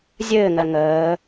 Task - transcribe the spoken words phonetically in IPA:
zʲɘːŋɜ ŋəː

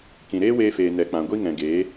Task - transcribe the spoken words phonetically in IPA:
kĩ˨ ɾeː˦weː˧feː˨ nɛ˨k͡pã˨ ɡʷi˦ŋɛ̃˨ɡeː˨˦

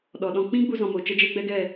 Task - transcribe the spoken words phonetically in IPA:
ɗɔ˨ɗɔ̃˧ k͡pĩ˦ɡ͡bu˧ zɔ̃˨mo˨ t͡ʃə˦d͡ʒe˦ɡ͡bɛ˦ɡɛ˦˨

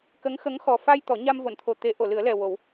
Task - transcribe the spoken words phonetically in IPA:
kə˧˥ŋxə˧˥ŋ xɔ˨˩fa˧j t̪ɔ˨˩˦ ɲa˧mvo˨˩˨nt̪ʰo˨˩ t̪e˨˩˦ ʔo˨˩˨lɨ˨˩˦ə̯lɛ˨˩ wo˨˩˦w

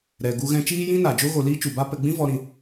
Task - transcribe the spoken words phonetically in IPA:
ɾɛ˨ɡu˧ɣɛ̃˧ t͡ʃiː˦jĩ˦na˨d͡ʒo˦ ɣo˧ liː˦t͡ʃu˨ba˦ pɛ˧ɡ͡bĩ˦ vɔ˧ɾĩ˧

